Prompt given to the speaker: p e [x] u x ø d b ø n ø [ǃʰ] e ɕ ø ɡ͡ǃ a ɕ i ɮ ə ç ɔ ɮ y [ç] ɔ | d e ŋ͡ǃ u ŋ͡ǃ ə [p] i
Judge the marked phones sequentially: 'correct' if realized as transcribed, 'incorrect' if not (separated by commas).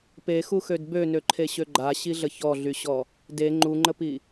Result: correct, correct, incorrect, correct